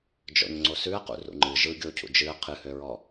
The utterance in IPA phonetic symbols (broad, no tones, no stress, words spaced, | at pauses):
d͡ʒɔ̰ɲŋ͡ǀosʉɐ̯qṵ rṵŋ͡ǃɨ ʒɯ ɡʲocʰṵ d͡ʒɨɐ̯ qʰɨhøɹɔ